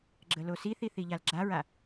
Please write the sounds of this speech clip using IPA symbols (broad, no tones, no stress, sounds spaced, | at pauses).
ɡ͡ǁ ə l o s i θ i θ i ʎ a l ɡ͡ǁ a ɹ a